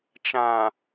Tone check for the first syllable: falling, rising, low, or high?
low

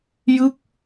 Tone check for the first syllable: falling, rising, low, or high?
falling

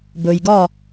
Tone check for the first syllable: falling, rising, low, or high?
low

